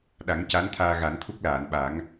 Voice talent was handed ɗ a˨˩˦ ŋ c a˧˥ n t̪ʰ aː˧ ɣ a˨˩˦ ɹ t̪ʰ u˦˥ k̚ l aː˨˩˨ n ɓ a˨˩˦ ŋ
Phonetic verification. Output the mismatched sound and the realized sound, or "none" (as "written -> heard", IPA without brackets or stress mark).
ɹ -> n